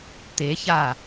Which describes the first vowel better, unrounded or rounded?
unrounded